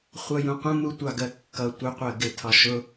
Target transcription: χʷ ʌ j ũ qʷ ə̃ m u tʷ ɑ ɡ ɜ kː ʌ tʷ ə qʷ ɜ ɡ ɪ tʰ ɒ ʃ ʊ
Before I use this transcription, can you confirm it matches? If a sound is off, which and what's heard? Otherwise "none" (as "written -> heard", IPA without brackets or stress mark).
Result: none